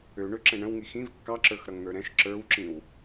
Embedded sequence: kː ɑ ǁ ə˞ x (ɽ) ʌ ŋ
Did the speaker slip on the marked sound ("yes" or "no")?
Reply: yes